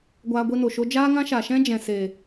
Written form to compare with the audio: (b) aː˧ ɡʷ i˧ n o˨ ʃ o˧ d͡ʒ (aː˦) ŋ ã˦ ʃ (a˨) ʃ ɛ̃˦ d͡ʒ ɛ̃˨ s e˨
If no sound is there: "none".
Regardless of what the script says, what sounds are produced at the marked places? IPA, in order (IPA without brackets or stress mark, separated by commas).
ɡʷ, aː˦, a˨